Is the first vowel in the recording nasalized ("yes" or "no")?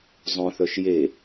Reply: yes